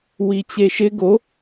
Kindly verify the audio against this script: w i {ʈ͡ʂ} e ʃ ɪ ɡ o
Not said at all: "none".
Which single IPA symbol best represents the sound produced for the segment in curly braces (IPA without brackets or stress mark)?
t͡ɕ